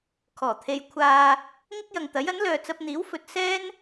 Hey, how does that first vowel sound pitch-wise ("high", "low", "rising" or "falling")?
low